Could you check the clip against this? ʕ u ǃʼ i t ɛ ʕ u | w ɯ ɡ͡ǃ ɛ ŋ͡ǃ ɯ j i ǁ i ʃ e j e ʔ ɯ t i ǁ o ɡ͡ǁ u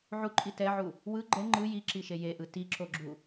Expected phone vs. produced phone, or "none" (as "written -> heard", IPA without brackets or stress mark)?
none